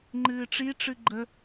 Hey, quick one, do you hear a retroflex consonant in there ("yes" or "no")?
yes